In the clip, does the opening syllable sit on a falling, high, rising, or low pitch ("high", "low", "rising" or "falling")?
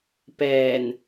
low